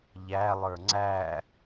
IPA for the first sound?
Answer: ʎ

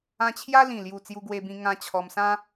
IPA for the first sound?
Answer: ã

